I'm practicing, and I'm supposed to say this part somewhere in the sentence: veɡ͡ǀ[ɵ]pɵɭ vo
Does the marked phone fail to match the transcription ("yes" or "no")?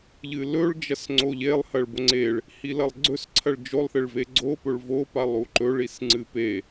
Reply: yes